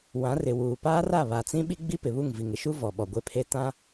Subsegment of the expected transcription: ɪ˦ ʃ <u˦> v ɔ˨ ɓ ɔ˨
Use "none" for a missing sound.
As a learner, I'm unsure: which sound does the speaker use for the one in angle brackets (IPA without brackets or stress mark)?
u˦